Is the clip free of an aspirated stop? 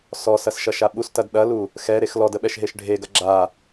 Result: yes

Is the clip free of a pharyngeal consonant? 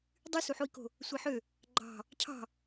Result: no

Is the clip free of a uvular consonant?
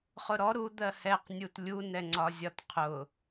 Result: no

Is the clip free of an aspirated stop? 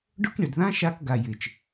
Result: yes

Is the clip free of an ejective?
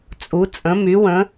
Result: no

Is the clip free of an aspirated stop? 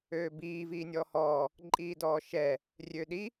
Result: yes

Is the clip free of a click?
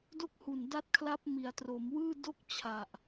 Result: yes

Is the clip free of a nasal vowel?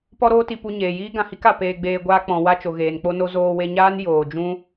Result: no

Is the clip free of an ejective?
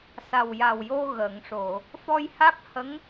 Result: yes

